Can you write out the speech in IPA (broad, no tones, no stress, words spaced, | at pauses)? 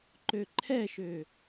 ǃøǃʰɛʃø